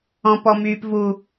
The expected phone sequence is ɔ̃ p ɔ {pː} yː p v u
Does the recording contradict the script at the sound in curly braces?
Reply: yes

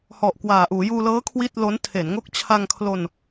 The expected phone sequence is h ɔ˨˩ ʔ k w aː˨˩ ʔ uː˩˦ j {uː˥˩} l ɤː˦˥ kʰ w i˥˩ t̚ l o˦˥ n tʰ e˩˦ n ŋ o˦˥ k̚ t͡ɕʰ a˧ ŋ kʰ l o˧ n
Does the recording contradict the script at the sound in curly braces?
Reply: yes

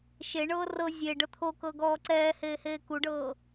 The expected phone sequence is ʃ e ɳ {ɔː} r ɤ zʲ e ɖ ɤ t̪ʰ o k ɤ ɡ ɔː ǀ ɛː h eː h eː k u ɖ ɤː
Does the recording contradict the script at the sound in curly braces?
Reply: yes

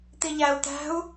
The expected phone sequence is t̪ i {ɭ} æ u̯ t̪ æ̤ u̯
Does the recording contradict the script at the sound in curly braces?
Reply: yes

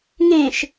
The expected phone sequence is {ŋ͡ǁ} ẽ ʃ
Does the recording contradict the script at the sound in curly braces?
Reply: yes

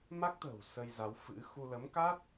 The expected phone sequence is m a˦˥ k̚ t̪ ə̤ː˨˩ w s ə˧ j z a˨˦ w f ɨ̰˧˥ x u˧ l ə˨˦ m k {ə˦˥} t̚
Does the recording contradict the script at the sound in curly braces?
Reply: yes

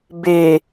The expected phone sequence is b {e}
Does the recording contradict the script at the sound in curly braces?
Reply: no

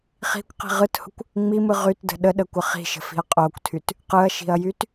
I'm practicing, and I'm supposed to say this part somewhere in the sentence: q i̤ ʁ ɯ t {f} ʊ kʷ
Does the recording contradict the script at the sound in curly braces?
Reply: yes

